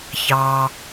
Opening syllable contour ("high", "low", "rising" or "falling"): low